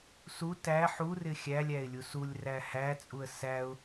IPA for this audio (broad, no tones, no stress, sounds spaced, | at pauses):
s u t æ ħ u r ɪ xʲ æ lʲ æ ɪ̯ lʲ u s u lʲ r æ h æ t͡sʼ u ə̯ s æ ʊ̯